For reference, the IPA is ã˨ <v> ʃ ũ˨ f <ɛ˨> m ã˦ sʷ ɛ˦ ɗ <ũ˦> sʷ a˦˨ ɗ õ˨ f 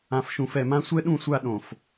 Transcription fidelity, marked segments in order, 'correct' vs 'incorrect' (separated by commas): incorrect, correct, incorrect